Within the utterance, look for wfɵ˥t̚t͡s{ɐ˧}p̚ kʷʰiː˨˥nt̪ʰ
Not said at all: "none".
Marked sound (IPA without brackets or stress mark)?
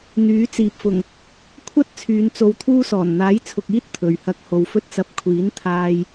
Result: ɐ˧